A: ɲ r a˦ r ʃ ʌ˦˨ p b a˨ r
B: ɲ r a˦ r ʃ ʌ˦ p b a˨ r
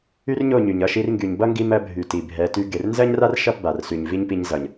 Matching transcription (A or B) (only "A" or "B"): A